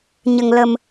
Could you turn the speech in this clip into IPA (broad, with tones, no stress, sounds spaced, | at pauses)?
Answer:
ɲ ə˨˩ ŋ l ə˨˩ m